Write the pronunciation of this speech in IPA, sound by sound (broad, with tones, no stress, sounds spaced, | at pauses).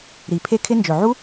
ɾ i˨˩ pʰ e˦˥ kʰ ɪ˦˥ n d͡ʒ ɵ˨˩ ʕ u˦˥